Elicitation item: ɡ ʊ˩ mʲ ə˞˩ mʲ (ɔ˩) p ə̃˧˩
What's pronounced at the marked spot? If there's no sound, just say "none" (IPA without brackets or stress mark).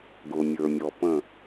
ɔ˩